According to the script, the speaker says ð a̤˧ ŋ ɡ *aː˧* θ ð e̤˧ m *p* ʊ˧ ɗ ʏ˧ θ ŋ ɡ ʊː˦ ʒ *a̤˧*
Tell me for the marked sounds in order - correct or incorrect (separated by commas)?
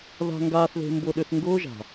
correct, incorrect, incorrect